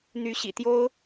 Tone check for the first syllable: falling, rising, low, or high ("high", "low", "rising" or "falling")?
rising